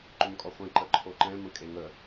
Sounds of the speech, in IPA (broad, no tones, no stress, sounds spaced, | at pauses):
ǃ ʏ m kʼ ɔ χʷ ẽ ǃ ə ǃʰ o ǃ ɛ̃ m ə̃ kʼ e ŋ ə